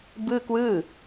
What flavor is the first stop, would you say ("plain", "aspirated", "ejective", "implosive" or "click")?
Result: plain